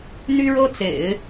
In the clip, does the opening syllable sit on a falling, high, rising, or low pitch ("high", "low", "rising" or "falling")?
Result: high